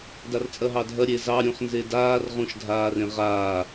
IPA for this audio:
d a r t͡sʼ ɐ ɦ ɑ dʱ ɐ ɾʲ e z ɑ ɾʲ ũ χ n z e d aː r ʁ ũ ʃ dʱ aː r ẽ ʁ aː

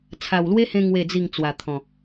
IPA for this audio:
t͡sʰ a˨˩ w l w e˦ h ẽ˧ ŋ w e˥˧ d͡z i˥˧ ŋ t͡s w a˨˩ t̪ʰ ɔ̃˨˩

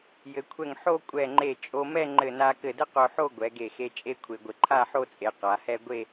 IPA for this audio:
j ɘ˩˧ kʷʰ ɛ˧˩ ŋ ħ o˥˧ kʷʼ ɛ˧˩ ŋ͡ǃ e˧˩ t͡ʃʼ o˧ m ɛ˥˧ ŋ͡ǃ ɘ˧˩ n a˧ k ɘ˧˩ d ɘ˥ q o˧ ħ o˥˧ ɡʷ ɛ˩˧ ɡ e˧˩ x e˧ t͡ʃʼ e˥ kʷʰ e˧ ɡʷ ɘ˧ ǃʰ a˥˧ ħ o˥˧ t͡sʼ e˩˧ q a˩˧ h ɛ˥ ɡʷ e˥˧

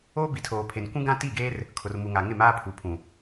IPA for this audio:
oː˦ b i˨ tʰ oː˨ pʰ e˨ n kʷ ũ˦ ɡ ã˦ t i˦˨ ɡ eː˦ r | kʰ ʊ˨ r m u˨ ŋ a˨ ŋ ɪ˦˨ m aː˦ pʰ u˨ pʰ ũ˨

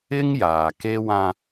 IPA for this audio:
ɪ˦ ŋ j aː˨ k e˦ w ã˦

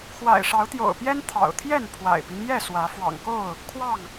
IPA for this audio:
x w a̰˨˩ ɪ̯ ʂ ɑ˨˦ ʊ̯ t̪ j o̰˨˩ ʊ̯ p j ɛ˦ n t̪ʰ ɑ̰˨˩ ʊ̯ t̪ʰ j ɛ˥˨ n pʰ w a̰˨˩ ɪ̯ p i˦ n j ɛ˥˨ s w ä˨˦ f w ɑ̰˨˩ ŋ k o˥˨ ʊ̯ | kʰ w ɑ˥˨ ŋ

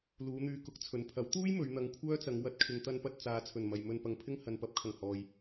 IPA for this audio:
l uː˨˧ n̪ yː˧ k ʊ˨˥ k̚ t͡sʰ ɵ˨ n pʰ ɐ˨˥ w t̪ uː˥ j m ɵ˨˧ ɥ n̪ ɐ˧ ŋ kʷʰ œː˥ t͡s ɐ˨˧ ŋ w ɐ˨˥ t̚ kʰ ɪ˨ ŋ t̪ ɐ˧ n p ɐ˧ t̚ t͡s aː˨ t͡sʰ ɵ˨˩ n m ɐ˨ j m ɵ˧ n p ɐ˨ ŋ pʰ ɪ˥ ŋ h ɐ˨ n p ɐ˨˥ p̚ kʰ ɐ˨˩ ŋ h ɔː˨ j

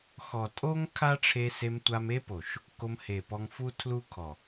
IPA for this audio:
x ɔ˨ tʼ o˦ ŋ kʰ a˦ ʈ͡ʂʰ e˧ s e˧ m tʷ a˧ m e˦ p o˨ ʃ | k o˧ m h e˨ p ɔ˧ ŋ f u˦ tʰ l u˦ kʰ ɔ˨

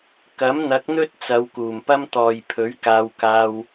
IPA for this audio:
k ɐ˨˥ m n̪ ɐ˨˥ k̚ n̪ ɵ˥ t̚ t͡s ɐ˨˧ w k uː˨˩ m p ɐ˥ m t̪ ɔː˨ j pʰ ɵ˨˥ ɥ k aː˧ w k aː˧ w

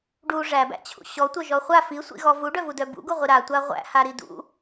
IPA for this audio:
ɖ u ʐ æ b æ̰ t͡ɕʰ ṵ ɕ ɔ tʷ œ ʒ ɔ χʷ a f i sʷ ḭ ɣ ɔ v u ɖ œ v u d œ b ṵ ɡ u ʁʷ i ɾ a tʷ a ʁʷ æ̰ h a ɾ i d ṵ

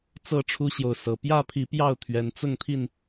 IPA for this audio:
t͡s ɤ˥˨ ʈ͡ʂʰ u˦ ɕ j o˨ ʊ̯ s ɤ˨˩ p j ä˥˨ pʰ i˨˦ p j ɑ˥˨ ʊ̯ t̪ʰ ɥ ɛ˨˦ n t͡s ʊ˥˨ ŋ t̪ʰ i˥˨ n

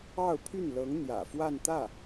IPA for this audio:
ɑ˥˧ ʊ̯ pʰ y˥˩ n l ɤ˧˥ ŋ n̪ j ä̰˨˩ f w a˥˧ n t̪ ä˥˩

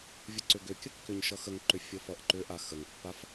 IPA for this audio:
vʲ ə ǀ ʏ ɡ ʏ kʲ ə kː ʏ ɲ ʃ ʌ x ə ŋ ǃ ʏ fʲ ə f ʌ ʔ ǃ ʏ ʔ a x ə ŋ pː a f

